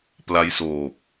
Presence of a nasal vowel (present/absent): absent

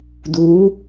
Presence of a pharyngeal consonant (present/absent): absent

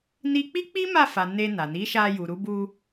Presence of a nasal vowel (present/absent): absent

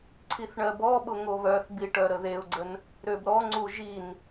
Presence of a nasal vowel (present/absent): absent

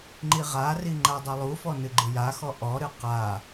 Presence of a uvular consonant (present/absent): present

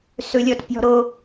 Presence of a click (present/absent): absent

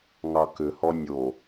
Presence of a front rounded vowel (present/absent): present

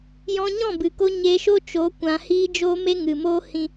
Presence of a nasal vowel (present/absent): present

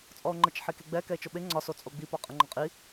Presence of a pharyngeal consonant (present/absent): present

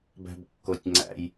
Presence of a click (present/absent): present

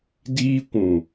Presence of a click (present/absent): absent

